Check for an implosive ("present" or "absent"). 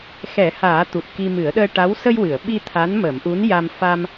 present